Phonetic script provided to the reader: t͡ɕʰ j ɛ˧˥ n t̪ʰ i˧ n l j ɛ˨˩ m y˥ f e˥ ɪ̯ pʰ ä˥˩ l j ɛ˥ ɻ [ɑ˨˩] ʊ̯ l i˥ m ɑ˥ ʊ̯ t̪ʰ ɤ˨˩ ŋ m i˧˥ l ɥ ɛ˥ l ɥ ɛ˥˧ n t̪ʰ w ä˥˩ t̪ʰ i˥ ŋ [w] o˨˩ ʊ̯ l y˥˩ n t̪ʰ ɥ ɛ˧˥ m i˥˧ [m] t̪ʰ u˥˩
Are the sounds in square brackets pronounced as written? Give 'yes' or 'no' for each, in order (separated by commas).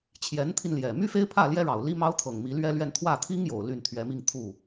yes, no, no